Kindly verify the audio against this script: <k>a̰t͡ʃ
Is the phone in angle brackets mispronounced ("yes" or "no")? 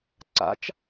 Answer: yes